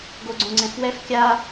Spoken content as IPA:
ɡoɡ͡ǀõŋ͡ǀɛ̃fwɛf kʲa

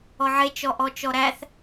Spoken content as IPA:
ɔʕe t͡ʃɔʔɔt͡ʃɔɾæθ

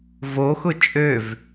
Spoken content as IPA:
voxʊ t͡ʃʼøv

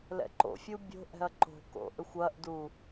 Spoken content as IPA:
lɛ̰ǃo̰fʲu bʲo̤ʔɛ̤ɐ̯ ǃo̤ko̰ ʔʏxʷɐʔdu

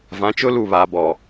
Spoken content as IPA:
vã˨˦t͡ʃʊ˦lu˦˨ βa˨ bɔ˨

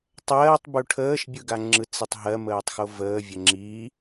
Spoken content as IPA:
tˤɜːtˤ buʈʰəːʃ bʲɯɡaŋ͡ǁɯ t͡sitˤɦɜ məːtˤxovəː vʲəŋ͡ǁi

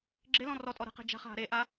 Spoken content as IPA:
ɡ͡ǁɪlɔ̃ rɔtʼɔ ɾə̤qe̤ d͡ʒa̤χɦa̤ ɾeʔa

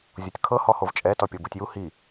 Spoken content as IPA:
zʲotʲkʰɤ hɔhovt͡ʃʼɛ tɔpʲɤbutʲju hi

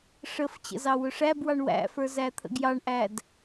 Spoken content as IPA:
ʂəf t͡ɕə̰zɑwʊʂæb wɑɳwæ̰fə˞ zæt̪ʰə̰ɡjɑɳʔæd

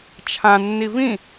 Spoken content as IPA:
t͡ʃʰã nːivĩ

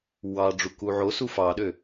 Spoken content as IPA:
wɑɖ͡ʐu kuʕosu fɑɗø

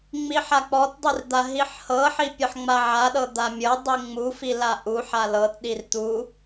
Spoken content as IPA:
ŋ͡miħak͡pɔtdˤir d̪aɦiħhɤħi pʲɤħŋ͡maʕaɗɤ d̪amʲɤdˤi ŋ͡mufi laʔuħa lɤtɗir t̪u

